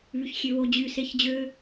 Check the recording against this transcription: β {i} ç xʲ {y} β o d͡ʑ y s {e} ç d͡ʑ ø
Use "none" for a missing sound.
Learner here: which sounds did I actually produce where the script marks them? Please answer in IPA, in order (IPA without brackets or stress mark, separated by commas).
y, ø, e